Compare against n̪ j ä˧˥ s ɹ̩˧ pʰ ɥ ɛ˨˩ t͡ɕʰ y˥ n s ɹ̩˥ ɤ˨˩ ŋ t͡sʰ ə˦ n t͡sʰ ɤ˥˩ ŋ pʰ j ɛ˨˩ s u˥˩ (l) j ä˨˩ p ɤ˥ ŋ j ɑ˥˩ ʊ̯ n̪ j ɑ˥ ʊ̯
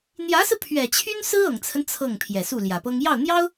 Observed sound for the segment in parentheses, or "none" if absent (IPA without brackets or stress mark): l